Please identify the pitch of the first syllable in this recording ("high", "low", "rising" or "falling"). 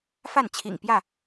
falling